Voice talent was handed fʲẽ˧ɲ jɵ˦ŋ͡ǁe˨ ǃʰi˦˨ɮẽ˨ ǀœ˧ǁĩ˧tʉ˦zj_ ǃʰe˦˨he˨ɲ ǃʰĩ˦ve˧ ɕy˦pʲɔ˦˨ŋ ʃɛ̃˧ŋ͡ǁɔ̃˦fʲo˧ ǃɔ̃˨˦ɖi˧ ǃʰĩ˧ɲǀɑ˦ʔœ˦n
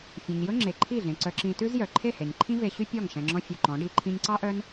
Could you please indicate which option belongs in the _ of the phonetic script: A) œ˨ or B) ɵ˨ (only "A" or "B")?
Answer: A